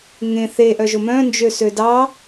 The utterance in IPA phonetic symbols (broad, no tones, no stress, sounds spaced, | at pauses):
ŋ ẽ θ e ʔ œ ʒ o m œ̃ n d͡ʒ ø s ø d ɑ